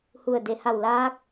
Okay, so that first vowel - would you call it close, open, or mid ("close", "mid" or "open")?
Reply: close